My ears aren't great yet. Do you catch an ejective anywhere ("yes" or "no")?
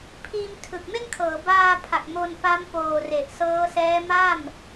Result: no